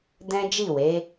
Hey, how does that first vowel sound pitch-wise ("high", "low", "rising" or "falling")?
high